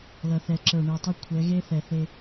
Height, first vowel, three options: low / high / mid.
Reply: mid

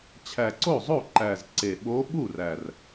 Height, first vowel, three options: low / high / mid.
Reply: low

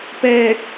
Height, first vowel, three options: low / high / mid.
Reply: mid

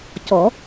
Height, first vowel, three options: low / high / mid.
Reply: mid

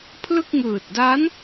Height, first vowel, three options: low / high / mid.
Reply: high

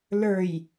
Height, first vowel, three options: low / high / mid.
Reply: mid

